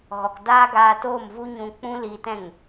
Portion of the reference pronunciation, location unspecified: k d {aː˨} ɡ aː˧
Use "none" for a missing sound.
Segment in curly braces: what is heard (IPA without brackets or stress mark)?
aː˦